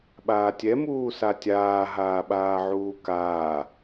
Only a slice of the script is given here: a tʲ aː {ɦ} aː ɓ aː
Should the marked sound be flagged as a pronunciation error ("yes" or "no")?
no